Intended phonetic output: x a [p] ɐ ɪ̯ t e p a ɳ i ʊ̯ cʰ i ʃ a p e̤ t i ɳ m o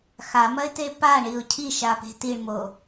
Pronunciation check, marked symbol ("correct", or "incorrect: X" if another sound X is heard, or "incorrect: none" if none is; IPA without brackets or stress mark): incorrect: m